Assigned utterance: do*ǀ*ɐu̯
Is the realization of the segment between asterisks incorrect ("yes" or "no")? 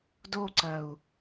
no